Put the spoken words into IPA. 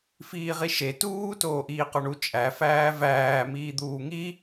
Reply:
f iː ʁ i ʃ e t uː t oː ʔ iː q ɒ ɳ u t͡ʃʼ æ f æː v æː m iː d̪ uː ŋ i

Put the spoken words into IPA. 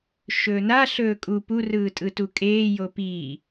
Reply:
ʃ ɵː n a ɬ ɵː kʼ u p u r ɯː tʼ ɯ t u kʼ eː j o p iː

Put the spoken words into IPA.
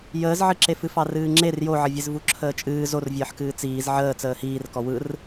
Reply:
j əː z ʕ ɨ ǁ e f ɨ f ɑ r ɨː ŋ͡ǁ e r j o ʕ ə vʲ e z v u ǁʰ əː t͡ʃʼ ɨː z o r vʲ əː ħ k ɨː t͡s iː z ʕ əː t͡s əː h iː r k ɔ w ɯ r

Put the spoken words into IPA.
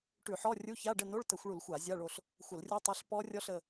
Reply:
ʈ ʉ˧˩˧ ħ ɔ˧˥˧ rʲ u˧˥˧ ç a˧˥˧ ɖ ə˦˨ n o˧˥˧ ɭ t ə˧˩˧ xʷ ɭ u˧˩˧ l xʷ a˧˩˧ zʲ a˧˥˧ ɭ o˦˨ ɬ | xʷ ə˧˩˧ l rʲ o˦˥ tˤ a˧˥˧ ɬ p ɔ˦˥ rʲ ɔ˦˥ ɬ ə˦˨

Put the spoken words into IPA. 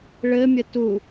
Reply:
ɭ ɘ mʲ ə t u

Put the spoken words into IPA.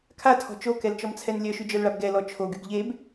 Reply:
kʰ a tʰ ɔ̤ t͡ʃ o k ɛ l t͡ʃ ɔ m t͡sʰ ɛ n lʲ œ ʃ y d͡ʒ œ l ɭ a b ɡ ɛ l ɔ t͡ʃʰ o ɡ y ɡ ʎ e b

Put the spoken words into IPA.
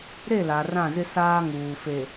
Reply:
ɾ e˦˨ l a˨ r ã˦˨ z ɪ˦ s aː˦ ŋ uː˨ f e˨

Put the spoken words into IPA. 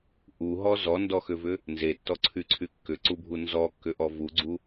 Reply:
ʔ u ɦ ɔ z ɔ n d ɔ x ʏ v ʏ | n z e tː ɔ ǀʰ y ǀʰ y kː ʏ ǀ u bʱ u n z ɔ kː ʏ ʔ ɔ v u ɡ͡ǀ u

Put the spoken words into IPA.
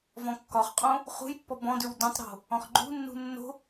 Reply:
v ɔ̃ kː ɒ χ qʼ õ | χ ṳ j pː ɔ b ɔ̃ d ʉ w d õ tˤ ɾ o̤ | ɔ̃ χ ɡ͡ǃ ṳ nː ṳ nː o̤

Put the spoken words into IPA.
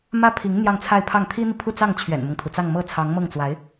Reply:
m ä˥ pʰ i˧˥ ŋ n̪ j ɑ˥˧ ŋ t͡sʰ a˥˧ ɪ̯ pʰ ɑ˥˩ ŋ t̪ʰ i˥ n̪ i˨ pʰ u˥˧ t͡s ɑ˥˩ ŋ t͡ɕʰ ɥ ɛ̰˨˩ n m ɤ˦ ŋ t̪ʰ u˩ t͡s ɑ˥˧ ŋ m ɤ˥˩ t͡sʰ ɑ˧˥ ŋ m ɤ˥˩ ŋ t͡s w a˧˥ ɪ̯

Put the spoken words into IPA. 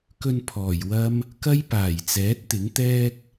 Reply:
k ɵ˧ n pʰ ɔː˨˩ j w ɐ˥ m | k ɐ˥ j p aː˨˩ j t͡s ɛː˨˥ t̚ t̪ ɪ˨˥ ŋ t̪ ɛː˥ k̚

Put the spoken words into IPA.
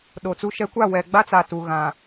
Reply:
ɗ o˨ t͡s u˦ ʃ ɛ˦ kʷ a˦˨ w ɛ˨ ɡ͡b a˦ t͡s a˨ t u˨ ɣ ã˨

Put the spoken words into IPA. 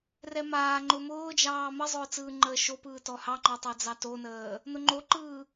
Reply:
r ɛ m aː ŋ͡ǃ ʊ m ʊː d͡ʒ ɑː m ə zˤ ʊː t͡s ɯː ŋ͡ǃ əː ʃ o p ɯː t ɔ h ɑ ŋ͡ǃ ɔ tˤ ɛ d͡z ɑ t o n əː | n ʊ ŋ͡ǃ o ǃ ɯː

